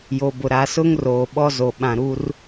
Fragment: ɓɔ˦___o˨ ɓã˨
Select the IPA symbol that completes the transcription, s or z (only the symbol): z